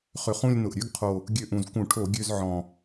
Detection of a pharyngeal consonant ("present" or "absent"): present